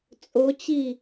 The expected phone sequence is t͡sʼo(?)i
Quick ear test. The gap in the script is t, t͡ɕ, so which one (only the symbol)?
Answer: t͡ɕ